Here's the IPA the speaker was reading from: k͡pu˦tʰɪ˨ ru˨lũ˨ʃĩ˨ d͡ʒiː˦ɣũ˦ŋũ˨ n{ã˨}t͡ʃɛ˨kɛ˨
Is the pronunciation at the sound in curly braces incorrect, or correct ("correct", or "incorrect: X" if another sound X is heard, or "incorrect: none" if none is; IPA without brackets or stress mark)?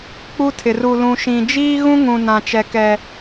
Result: correct